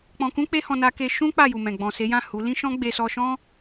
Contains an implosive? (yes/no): no